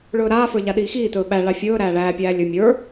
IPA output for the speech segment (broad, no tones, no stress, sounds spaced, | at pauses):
ɭ ɵː ɾ aː f ə˞ ʎ a ɗ iː x iː t ɵː ɓ æ ɭ a fʲ ɵː ɾ æː ɭ æː pʲ æː lʲ ɵ mʲ ə˞